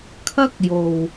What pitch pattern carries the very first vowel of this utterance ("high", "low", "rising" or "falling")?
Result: high